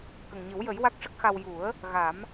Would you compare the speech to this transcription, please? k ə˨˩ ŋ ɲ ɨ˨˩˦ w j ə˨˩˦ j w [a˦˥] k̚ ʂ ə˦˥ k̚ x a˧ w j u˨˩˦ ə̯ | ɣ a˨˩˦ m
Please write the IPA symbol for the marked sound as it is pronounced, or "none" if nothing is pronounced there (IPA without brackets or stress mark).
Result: a˦˥